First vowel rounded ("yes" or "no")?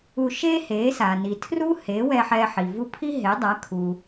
yes